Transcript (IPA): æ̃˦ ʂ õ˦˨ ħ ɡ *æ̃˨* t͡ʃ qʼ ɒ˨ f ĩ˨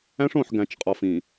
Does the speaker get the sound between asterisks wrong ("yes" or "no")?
no